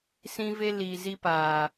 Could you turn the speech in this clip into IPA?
sĩ˦ve˦ liː˨zi˧paː˨

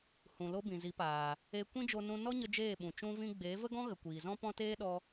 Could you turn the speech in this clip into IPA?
hũ˨lo˧ bĩ˨zi˨˦paː˨ | e˧ kʷĩ˦d͡ʒo˧nũ˧ nɔ˦ɲə˧ d͡ʒeː˦˨ɓũ˨ t͡ʃũ˧vĩ˧ ɡ͡be˨˦ və˦ɡɔ̃˦ɣə˨ kʷiː˨zɔ̃˦ pɔ̃˦teː˦ɗɔ˧

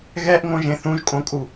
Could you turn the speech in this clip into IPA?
ɣɛʔŋõʒẽ θũʒkʼõkʼu

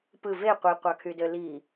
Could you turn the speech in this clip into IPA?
pɯ ve qʷiqʷɑkʰydø li

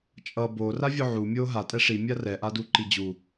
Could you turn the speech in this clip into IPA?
t͡ʃʼʌ bo ravʲoʕu mʲo ɦa tʼɛʂi mʲarɛ ʔaduǃid͡ʑu

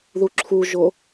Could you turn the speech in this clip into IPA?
ðuǁʰuʒo

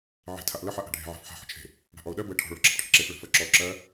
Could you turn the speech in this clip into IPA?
ʕe̤ tʰaʔlə ħaʔa̤ɖʱe̤ ʕa̤fħa̤ ħə̤t͡ʃʰe̤ | ɽa̤ʔɔʊ̯ɗɜ bəɪ̯ʈʰɔ̤ ɭɔ̤ǁə̤pʈʰə̤ǁef ɭə̤fɜǁɔ ǁɜ

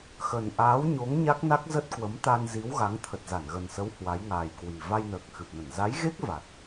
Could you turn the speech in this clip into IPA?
xə˨˩nʔaː˨˦wɲo˨˦ŋ ɲa˦˥k̚na˦˥k̚zə˦˥t̚ kwə˨˦mt̪a˧nzi˨˦wɣa˨˦ŋ t̪ʰə˨˩t̚za˧˩nɣə˨˩nsə˨˦w hwa˨˦jŋaː˨˩jkwi˨˩ va˧jnəː˨˩k̚xɨ˨˩p̚nə˧˩n za˨˦jɣe˦˥k̚ va˨˩t̚

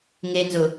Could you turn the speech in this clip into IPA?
ŋenzʊ

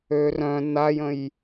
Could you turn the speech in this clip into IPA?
ø rœ̃ najə̃j

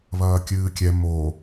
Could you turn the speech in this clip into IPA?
βɐːkʲɨːkʲɛ mo

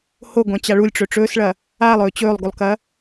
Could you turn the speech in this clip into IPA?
hoɡʷãt͡ɕa ɭulʲʈ͡ʂɵ ʈ͡ʂɵːsɭɐ | alˠɵː t͡ɕɵːlˠɡulˠkɐ

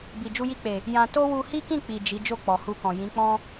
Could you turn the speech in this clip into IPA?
bi˨d͡ʒu˧ji˧k͡pe˨ | jã˧ to˦ wu˧hi˦kĩ˦˨ k͡pi˨ d͡ʒi˨˦ d͡ʒo˦˨k͡pɔ˨hu˧kɔ̃˨ jĩ˨˦k͡pɔ̃˦

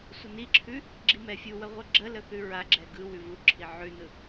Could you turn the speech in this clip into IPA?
sʷəniǁʰʉ | ɡ͡ǁimɛfʲuwə ʁʷɯɡ͡ǁələ θʉɹaɡ͡ǁɛ ɡɯ wʉvuǁʰi ʕʉnɯ

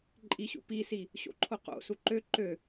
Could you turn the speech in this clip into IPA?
ǃʼiɕṵ pisi | ɕo̰ǃʰoqo̰ suǃø ǃø

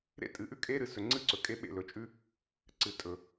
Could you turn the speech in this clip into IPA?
ɾḛ˦tʼɨ˨ʔʉ˦ kʼe˦ɾɨ˨sɵ˨ ŋ͡ǀɨ˦ǀɵ˨kʼe˦ ɓḛ˦˨lɵ˨t͡ʃʼʉ˦ | ǀɨ˨tʼɵ˨

